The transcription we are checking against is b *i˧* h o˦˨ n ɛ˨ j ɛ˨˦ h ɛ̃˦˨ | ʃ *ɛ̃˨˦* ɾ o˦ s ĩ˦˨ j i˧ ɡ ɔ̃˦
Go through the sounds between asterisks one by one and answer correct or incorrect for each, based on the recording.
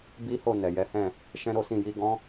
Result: incorrect: i˦, incorrect: ɛ̃˦

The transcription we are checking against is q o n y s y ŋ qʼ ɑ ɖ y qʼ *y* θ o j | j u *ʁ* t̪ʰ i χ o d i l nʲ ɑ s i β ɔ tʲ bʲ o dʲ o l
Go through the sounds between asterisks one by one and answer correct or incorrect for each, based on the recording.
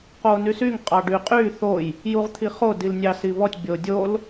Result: correct, correct

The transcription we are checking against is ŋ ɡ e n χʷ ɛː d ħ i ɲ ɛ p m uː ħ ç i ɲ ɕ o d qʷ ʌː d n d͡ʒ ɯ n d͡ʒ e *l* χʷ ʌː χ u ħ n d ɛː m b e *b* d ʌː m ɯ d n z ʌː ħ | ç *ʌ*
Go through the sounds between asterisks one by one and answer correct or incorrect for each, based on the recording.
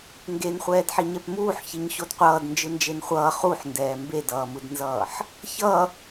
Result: incorrect: n, incorrect: none, correct

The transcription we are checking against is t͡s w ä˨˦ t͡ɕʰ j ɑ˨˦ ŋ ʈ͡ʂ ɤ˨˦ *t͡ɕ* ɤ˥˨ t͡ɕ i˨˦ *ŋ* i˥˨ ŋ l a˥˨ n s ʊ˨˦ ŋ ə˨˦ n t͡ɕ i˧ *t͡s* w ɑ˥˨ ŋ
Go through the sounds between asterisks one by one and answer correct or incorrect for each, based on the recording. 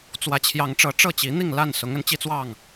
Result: incorrect: ʈ͡ʂ, incorrect: n̪, correct

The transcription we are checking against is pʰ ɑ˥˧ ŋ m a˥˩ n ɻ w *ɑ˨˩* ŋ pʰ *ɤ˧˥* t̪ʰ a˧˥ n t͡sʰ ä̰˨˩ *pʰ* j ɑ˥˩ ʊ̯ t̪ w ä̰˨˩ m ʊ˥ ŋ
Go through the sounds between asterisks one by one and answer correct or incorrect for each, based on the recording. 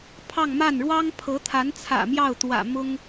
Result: incorrect: ɑ˥, correct, incorrect: m

